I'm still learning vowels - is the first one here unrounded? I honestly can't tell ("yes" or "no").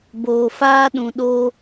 no